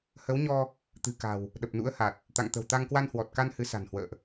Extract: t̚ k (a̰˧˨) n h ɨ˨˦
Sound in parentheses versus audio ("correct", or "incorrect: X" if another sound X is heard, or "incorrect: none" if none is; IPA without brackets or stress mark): incorrect: a˧